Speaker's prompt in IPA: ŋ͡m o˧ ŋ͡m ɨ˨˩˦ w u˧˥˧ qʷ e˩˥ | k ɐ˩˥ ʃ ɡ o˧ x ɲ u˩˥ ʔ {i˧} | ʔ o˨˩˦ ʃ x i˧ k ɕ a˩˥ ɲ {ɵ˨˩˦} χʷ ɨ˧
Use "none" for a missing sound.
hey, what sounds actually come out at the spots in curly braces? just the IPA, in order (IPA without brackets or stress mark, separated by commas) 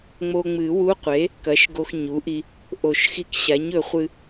i˧, ɵ˨˩˦